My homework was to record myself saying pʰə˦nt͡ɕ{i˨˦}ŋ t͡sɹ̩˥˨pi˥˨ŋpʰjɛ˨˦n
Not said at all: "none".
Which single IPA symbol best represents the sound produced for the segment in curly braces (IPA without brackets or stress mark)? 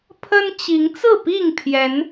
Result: i˨˦